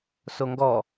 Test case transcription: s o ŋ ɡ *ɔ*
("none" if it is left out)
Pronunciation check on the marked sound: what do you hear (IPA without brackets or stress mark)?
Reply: ɔ